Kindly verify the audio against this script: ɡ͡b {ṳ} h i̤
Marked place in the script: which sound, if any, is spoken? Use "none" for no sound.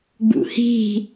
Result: ṵ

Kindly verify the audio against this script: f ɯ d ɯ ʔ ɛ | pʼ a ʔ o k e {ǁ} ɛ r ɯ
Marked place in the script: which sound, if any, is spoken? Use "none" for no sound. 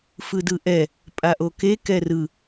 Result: k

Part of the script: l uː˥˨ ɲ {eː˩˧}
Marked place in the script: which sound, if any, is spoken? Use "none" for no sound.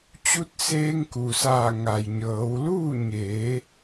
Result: eː˩˧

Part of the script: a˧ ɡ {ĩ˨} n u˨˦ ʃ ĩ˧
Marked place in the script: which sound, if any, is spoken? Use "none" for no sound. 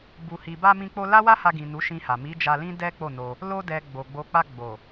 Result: ĩ˨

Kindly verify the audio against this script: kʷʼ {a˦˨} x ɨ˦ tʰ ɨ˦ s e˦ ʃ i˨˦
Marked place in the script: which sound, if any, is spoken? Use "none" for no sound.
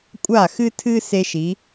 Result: a˦˨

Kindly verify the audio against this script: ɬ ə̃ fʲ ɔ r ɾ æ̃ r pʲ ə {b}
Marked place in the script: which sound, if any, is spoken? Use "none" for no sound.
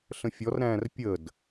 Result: d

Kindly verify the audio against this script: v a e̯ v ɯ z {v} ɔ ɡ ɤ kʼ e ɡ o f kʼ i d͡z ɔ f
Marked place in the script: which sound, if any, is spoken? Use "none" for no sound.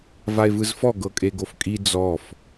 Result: f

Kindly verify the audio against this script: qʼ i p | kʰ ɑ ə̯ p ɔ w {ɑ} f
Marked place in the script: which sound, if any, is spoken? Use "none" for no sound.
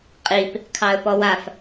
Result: a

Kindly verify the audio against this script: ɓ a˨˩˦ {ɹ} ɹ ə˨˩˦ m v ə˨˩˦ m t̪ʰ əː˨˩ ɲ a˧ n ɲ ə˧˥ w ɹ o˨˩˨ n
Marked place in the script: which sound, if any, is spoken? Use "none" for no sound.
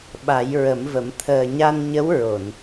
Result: j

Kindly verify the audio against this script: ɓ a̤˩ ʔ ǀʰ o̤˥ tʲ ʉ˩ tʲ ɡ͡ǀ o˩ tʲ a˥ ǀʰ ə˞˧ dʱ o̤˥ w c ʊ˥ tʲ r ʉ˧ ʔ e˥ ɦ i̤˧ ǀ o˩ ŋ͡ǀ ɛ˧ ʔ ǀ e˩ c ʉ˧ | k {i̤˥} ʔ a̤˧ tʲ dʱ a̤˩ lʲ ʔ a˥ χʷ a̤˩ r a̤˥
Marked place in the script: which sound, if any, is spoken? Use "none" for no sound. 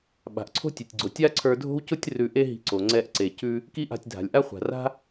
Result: i˥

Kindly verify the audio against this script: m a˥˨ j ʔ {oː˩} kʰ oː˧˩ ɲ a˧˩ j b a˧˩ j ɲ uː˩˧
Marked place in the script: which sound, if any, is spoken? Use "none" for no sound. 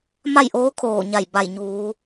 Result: oː˧˥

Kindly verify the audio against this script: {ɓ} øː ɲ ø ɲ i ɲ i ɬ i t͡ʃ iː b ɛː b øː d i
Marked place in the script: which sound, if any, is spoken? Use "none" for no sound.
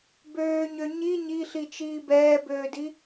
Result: b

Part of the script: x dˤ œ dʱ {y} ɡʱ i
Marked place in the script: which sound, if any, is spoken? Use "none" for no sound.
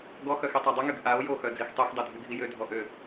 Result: y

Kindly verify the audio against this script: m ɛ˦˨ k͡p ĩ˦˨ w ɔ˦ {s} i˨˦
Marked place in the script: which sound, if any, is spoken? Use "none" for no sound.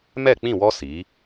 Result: s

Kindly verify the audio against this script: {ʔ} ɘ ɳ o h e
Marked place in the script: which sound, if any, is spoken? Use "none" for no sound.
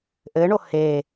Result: ʔ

